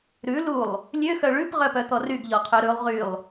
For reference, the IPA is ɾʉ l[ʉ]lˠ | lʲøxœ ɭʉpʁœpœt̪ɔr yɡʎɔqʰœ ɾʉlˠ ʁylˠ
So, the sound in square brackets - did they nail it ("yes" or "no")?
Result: no